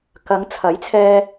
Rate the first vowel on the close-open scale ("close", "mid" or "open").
open